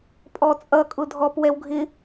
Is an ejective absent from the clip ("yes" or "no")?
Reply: no